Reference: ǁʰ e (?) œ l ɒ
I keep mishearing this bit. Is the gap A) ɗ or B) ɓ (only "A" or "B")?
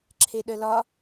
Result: A